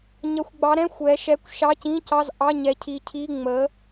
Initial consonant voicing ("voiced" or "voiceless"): voiced